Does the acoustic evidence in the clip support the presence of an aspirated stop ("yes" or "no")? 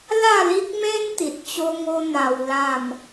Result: no